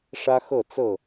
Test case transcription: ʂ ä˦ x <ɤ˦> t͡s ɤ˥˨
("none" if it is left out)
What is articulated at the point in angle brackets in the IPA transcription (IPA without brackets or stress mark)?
ɤ˥˨